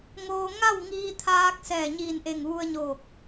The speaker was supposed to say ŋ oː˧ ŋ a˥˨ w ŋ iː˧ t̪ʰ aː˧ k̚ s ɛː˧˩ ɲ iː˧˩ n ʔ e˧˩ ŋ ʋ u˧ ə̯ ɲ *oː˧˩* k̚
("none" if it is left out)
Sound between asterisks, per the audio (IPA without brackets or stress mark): oː˧˩